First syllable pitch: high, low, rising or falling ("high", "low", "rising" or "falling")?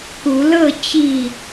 rising